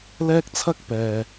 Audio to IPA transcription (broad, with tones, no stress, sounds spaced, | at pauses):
l ɛː˥ k̚ t͡sʰ ɐ˥ k̚ p ɛː˨